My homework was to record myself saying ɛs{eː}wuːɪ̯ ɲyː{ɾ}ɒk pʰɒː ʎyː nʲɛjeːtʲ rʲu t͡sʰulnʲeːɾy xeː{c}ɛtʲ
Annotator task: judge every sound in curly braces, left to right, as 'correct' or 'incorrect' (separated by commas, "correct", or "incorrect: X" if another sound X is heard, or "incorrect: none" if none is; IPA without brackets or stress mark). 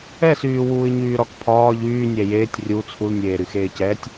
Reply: incorrect: yː, correct, correct